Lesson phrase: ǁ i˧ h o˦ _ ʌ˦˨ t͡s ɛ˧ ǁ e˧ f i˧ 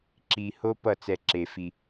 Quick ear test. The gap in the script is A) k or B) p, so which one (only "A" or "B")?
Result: B